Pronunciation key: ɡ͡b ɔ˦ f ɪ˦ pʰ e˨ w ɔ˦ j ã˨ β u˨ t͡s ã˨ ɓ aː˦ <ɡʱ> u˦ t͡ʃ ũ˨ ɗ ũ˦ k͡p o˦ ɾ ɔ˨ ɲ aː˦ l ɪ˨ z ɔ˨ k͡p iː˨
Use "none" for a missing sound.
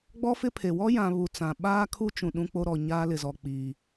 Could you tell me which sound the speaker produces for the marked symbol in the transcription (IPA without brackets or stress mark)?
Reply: kʰ